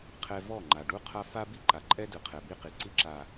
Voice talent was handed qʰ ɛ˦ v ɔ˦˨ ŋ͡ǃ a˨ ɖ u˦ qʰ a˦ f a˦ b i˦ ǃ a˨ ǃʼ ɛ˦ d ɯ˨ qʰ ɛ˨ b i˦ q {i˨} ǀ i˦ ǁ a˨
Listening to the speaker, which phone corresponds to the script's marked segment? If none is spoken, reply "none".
i˨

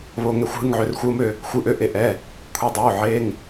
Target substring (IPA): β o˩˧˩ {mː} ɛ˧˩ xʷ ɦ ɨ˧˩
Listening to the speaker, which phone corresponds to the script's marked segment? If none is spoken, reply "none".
ŋ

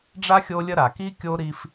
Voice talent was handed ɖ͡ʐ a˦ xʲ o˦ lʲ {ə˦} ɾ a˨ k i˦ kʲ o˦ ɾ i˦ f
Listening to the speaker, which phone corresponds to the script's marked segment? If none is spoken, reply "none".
ə˦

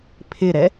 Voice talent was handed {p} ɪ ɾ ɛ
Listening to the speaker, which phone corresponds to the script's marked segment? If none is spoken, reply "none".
pʰ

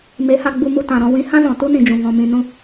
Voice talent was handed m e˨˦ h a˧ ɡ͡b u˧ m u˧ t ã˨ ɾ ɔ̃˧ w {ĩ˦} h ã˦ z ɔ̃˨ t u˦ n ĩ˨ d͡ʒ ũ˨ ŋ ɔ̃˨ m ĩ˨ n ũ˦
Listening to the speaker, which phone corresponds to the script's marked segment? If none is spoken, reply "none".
ĩ˨˦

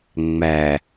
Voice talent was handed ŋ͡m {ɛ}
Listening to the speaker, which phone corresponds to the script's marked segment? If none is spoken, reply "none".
æ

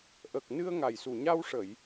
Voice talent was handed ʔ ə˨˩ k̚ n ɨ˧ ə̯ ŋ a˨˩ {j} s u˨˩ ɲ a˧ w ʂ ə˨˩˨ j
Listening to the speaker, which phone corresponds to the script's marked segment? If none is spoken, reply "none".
j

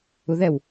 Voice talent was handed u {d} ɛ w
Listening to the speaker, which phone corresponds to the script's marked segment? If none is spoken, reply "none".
ð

